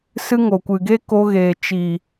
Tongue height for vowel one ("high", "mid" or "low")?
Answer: high